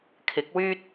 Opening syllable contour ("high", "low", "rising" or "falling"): rising